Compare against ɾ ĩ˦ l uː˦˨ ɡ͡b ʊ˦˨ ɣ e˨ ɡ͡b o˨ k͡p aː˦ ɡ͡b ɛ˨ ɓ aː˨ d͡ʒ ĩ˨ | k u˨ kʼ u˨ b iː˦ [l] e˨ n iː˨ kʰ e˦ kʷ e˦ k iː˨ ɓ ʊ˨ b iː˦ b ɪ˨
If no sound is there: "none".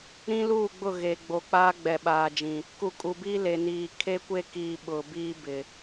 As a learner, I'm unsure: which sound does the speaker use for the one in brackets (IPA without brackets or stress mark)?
l